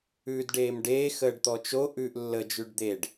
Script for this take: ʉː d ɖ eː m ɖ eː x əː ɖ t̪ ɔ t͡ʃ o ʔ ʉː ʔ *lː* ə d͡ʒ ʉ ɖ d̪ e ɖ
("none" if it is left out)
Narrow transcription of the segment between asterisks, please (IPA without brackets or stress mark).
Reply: lː